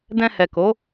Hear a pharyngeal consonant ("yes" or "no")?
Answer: no